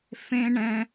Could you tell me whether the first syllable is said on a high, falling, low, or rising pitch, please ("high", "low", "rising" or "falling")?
high